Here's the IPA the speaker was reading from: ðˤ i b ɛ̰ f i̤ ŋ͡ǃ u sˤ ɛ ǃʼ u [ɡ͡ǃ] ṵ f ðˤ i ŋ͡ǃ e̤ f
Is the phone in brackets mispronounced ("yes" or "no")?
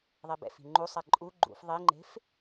no